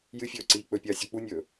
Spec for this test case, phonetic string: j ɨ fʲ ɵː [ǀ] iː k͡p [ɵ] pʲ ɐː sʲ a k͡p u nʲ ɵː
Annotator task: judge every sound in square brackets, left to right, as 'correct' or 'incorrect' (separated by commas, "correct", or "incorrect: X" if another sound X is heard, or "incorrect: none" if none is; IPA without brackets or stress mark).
correct, correct